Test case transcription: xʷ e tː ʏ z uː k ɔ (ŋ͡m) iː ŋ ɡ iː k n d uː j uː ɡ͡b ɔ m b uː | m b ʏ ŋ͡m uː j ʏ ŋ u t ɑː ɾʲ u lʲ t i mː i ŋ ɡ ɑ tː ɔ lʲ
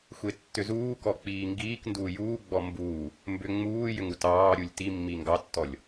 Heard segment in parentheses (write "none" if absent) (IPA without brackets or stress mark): k͡p